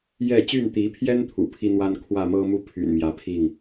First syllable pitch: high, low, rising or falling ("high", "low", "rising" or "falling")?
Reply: falling